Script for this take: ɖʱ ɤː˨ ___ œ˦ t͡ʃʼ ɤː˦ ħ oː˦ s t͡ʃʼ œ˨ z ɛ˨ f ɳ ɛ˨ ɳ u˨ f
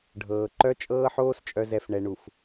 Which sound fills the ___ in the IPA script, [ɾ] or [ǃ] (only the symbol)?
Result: ǃ